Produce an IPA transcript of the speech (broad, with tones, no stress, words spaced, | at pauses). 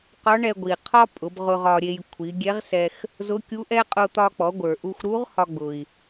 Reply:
qɒ˧˥ɳɛ˧ɡʷi˩qʰɒ˥ pʼʊ˩˧bʁʊ˧ ʁɒ˧ɾʲe˧j kʷʰi˩˧ɡʲɛ˧˥ʁsɛ˧x | zʊ˧˥kʲu˧˥ʔɛ˥ qʼʊ˧ t̪ɒ˧k͡pɔ˩˧ɡʷə˞˩ ʔu˧xʷɾu˧˥ʁ hɒ˧ɡ͡bʊ˩i̯